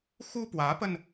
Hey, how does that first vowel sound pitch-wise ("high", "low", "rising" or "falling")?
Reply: high